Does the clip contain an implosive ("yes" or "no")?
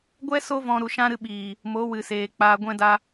yes